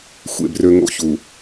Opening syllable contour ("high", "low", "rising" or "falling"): falling